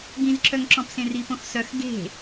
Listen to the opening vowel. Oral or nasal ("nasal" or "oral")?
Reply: nasal